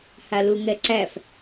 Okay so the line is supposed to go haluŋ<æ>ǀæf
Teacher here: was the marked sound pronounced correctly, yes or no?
no